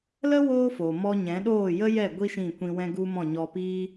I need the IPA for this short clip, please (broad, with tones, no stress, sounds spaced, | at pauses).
l ə˦ w oː˦ f o˨ m ɔ˧ ɲ ɛ̃˨˦ ɗ oː˦˨ j ə˦ j ɛ˦˨ ɡʷ i˦ ʃ ĩ˦˨ kʷ ĩ˧ w ɛ̃˦ ɡ u˦ m ɔ̃˦˨ ɲ ɔ˧ p iː˦